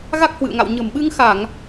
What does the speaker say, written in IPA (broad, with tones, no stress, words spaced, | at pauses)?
ɣa˦˥k̚hwɨ̰˧˨ə̯ŋa̰˧˨w ɲə̤˨˩mɓɨ˧ŋxa˧˩˨ŋ